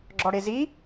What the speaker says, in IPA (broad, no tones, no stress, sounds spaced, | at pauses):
ɡ͡ǁ ɔ ɽ e z i